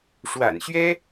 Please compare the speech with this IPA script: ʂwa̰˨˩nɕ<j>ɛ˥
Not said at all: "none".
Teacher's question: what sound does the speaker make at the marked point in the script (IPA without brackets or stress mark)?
ɥ